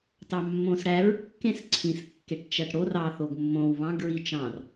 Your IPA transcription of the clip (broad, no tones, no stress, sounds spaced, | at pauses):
t ɑ mː õ s ɽ æ ɹ kː ẽ s ǀʰ ĩ s kː e ʈ t͡ʃ æ ʈ ɽ o r ɑ θ o ɡ mː õ w β ɑ̃ ɡ ɹ i t͡ʃ ɑ̃ r